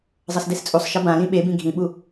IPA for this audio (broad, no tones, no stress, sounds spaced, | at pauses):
zˤ ʌ s d e s t͡sʼ u sˤ ʃ ʌ b ã l ĩ ɓ e b ĩ ɡʱ ĩ ɓ u